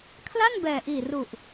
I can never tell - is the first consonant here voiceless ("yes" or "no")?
yes